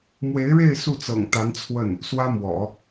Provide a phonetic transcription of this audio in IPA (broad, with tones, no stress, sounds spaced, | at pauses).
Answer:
m w e˧˥ ɪ̯ ɻ e˥˧ ɪ̯ s u˥˩ t͡s ɤ̰˨˩ ŋ t̪ a˧˥ n t͡sʰ w ə˥˩ n | s w ä˥ m w ɔ̰˨˩˦